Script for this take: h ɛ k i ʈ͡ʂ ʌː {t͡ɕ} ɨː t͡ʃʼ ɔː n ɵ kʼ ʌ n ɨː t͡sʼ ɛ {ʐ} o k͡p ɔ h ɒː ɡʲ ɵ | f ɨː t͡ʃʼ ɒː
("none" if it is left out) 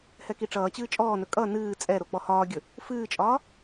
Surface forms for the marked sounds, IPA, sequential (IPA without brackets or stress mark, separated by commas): t͡ɕ, ɾ